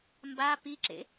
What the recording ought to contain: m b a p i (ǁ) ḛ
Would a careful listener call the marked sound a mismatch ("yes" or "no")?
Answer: no